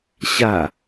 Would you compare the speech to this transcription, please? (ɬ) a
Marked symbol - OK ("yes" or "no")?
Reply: no